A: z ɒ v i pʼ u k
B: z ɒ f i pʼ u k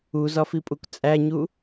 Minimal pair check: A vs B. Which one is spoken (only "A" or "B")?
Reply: B